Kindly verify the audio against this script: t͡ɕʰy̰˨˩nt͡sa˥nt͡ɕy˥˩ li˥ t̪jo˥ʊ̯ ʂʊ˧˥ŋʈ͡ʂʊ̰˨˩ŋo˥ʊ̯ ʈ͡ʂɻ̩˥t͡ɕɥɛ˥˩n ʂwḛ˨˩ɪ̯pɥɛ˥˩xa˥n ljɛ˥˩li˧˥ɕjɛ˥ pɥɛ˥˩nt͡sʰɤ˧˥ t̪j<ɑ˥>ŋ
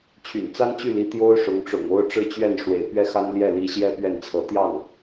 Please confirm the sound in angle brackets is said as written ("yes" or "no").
no